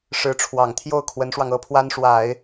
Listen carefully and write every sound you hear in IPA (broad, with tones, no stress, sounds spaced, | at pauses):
ʂ ɻ̩˧˥ ʈ͡ʂʰ w ɑ˨˩ ŋ t̪ʰ j o˥˩ ʊ̯ kʰ w ə˧˥ n ʂ w ɑ˧ ŋ ɤ˥˩ pʰ w a˥ n ʂ w a˨˩˦ ɪ̯